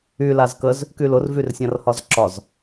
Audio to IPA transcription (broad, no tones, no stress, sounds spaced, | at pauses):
y l a z k ə z | k y l ʊ r v y r sʲ ã r h ɒ z ǁ ɒ z